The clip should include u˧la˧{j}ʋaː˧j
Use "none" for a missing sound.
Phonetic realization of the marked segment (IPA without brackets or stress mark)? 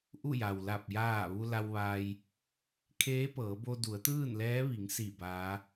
w